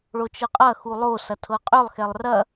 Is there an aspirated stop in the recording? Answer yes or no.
yes